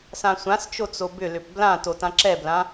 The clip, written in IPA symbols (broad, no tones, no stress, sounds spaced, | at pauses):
s ã sʷ ã s t͡ʃ o t͡s o b ʏ l ʏ p b l ã t o t ã ǁ ɛ b l ã